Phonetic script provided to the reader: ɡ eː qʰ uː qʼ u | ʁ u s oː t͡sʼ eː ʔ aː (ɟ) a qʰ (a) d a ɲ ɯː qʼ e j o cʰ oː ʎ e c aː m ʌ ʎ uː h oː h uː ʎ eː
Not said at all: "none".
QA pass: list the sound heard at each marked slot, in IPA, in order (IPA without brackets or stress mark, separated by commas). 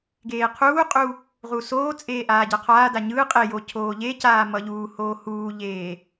ɟ, aː